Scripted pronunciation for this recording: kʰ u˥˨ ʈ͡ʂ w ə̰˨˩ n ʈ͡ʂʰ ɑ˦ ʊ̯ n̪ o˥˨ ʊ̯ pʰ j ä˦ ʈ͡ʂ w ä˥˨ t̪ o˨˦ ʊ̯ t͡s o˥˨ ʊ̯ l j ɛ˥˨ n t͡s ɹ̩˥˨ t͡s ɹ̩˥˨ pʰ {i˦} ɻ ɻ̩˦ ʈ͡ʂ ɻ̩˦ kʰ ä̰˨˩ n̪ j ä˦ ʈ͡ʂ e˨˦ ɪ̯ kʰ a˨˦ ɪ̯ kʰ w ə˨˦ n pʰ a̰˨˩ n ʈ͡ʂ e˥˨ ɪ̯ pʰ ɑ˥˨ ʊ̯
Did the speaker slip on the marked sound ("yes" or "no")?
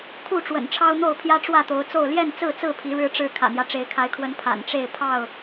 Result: yes